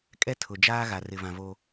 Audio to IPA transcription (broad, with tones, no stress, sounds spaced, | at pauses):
kʼ ɛ˦ tʰ ʊ˨ d͡ʒ aː˦ ɣ a˨ r ɪ˨ v ã˨ v o˦